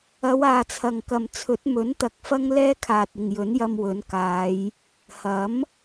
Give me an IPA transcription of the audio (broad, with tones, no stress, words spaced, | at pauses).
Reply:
ɐ˨˧w aː˨t͡sʰɐ˨ŋkɐ˨mt͡sʰɵ˨˥t̚ mɵ˨˥nt̪ɐ˨k̚ fɐ˥ŋlɛː˥kʰaː˨t̚ ɪ˨ŋjɵ˨˥njɐ˧mwɵ˨˥n kaː˨˧j | hɐ˨˥m